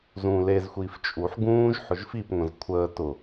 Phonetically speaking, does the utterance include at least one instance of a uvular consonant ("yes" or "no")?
no